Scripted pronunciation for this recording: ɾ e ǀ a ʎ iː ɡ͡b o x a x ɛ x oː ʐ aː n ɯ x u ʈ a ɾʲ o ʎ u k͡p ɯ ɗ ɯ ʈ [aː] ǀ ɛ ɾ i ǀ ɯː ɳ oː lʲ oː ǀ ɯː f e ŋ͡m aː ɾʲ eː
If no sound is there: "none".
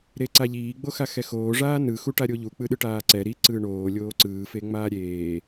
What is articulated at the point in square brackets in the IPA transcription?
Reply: aː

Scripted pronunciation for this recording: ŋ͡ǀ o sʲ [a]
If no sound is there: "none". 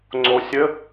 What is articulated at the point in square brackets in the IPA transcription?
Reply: ə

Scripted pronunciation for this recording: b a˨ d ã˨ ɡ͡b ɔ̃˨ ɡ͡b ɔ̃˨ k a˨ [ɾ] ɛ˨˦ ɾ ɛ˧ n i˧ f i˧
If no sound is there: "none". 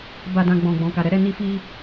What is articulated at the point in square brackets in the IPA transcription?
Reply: ɾ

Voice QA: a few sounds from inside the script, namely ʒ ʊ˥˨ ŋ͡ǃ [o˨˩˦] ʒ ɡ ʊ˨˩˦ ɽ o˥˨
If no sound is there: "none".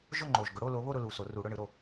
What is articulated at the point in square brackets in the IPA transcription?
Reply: o˨˩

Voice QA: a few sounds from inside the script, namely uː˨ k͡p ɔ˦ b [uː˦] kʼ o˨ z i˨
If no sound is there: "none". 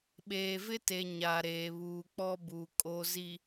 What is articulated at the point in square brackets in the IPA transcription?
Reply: uː˨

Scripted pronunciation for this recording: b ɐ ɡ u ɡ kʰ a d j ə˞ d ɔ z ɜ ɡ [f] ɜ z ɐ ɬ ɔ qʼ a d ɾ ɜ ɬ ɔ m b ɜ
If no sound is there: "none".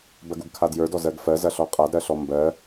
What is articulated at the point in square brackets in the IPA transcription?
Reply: f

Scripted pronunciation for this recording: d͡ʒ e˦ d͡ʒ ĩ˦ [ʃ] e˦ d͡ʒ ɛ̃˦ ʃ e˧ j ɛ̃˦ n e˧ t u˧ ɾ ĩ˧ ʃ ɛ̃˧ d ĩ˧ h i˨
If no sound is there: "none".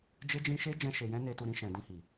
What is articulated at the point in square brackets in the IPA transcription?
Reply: ʃ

